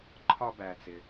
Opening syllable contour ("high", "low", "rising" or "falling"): high